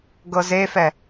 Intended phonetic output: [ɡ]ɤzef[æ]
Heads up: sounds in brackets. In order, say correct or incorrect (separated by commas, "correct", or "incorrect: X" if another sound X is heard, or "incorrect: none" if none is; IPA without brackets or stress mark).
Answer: correct, incorrect: ɛ